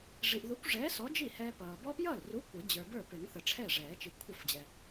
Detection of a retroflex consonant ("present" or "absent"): present